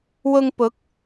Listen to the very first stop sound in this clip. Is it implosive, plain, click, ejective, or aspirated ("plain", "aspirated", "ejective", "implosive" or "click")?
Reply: plain